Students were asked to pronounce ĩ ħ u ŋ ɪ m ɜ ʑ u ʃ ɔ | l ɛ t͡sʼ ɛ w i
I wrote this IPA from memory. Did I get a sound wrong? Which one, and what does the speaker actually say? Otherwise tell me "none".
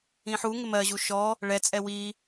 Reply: l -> ɭ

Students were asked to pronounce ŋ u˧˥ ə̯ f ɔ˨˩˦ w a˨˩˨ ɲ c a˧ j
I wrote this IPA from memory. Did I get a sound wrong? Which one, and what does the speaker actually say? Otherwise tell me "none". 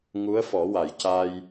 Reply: ɲ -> j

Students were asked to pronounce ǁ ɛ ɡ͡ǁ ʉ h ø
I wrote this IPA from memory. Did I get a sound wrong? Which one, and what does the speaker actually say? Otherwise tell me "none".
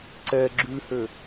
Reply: ǁ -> ǀ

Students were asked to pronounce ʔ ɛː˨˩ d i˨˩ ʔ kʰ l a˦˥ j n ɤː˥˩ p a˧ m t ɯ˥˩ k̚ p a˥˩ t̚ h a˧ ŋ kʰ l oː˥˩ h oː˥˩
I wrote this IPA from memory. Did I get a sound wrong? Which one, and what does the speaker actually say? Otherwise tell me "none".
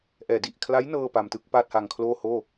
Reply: none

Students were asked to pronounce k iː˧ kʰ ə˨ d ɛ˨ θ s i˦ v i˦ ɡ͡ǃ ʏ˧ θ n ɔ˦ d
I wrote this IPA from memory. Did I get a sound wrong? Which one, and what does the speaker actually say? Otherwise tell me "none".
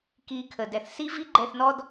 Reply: ʏ˧ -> ɛ˧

